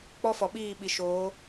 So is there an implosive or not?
yes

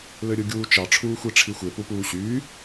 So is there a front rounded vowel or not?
yes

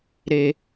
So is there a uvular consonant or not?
no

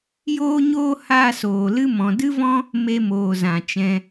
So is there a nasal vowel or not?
yes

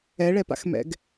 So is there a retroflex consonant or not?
yes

